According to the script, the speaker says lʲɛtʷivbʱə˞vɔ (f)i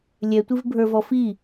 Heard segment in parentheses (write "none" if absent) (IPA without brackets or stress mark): f